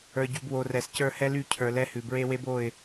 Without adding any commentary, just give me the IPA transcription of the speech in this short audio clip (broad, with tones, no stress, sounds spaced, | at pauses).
ə˞˨ ɟ y˨ b w o˨ r ɛ˨ s c ə˞˦˨ h ɛ˦ l y˦˨ cʰ ə˞˨ l ɛ˦ h ʉ˨ b ɹ e˦ w e˦ b o˦˨ ɪ̯